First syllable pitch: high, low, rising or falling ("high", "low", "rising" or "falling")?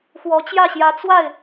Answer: rising